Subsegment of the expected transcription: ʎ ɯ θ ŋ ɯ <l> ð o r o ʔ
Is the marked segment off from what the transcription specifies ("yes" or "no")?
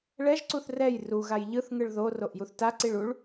yes